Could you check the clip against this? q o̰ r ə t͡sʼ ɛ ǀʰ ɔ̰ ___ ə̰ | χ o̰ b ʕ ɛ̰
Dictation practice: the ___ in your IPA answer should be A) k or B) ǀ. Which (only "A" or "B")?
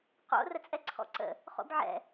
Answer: B